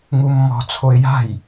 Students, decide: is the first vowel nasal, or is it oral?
oral